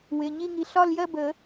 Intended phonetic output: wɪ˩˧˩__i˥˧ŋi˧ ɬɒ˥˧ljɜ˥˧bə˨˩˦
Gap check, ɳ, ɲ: ɲ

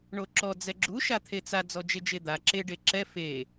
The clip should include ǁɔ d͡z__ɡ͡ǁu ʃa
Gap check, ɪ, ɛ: ɛ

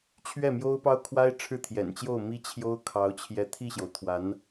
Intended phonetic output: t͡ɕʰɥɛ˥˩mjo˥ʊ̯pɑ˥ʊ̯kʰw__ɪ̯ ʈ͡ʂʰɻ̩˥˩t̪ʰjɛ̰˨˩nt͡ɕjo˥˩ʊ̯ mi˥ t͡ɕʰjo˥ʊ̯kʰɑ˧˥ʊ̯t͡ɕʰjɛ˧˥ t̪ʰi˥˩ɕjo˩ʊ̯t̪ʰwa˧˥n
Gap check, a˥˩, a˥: a˥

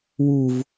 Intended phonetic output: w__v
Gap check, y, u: u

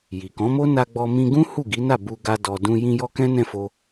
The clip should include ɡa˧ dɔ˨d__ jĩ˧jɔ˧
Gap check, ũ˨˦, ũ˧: ũ˧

